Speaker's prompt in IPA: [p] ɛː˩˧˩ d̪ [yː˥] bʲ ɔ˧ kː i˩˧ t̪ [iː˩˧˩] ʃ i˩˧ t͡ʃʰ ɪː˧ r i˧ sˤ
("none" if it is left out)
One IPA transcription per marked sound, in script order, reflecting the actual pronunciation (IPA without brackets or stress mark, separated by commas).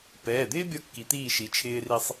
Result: p, ɪː˥, iː˧˩